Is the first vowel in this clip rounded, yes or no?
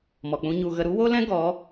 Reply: yes